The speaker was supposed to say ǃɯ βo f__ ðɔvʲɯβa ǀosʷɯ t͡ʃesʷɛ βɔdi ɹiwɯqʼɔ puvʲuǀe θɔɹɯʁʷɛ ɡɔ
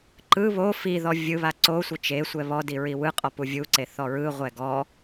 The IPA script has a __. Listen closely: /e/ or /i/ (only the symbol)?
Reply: i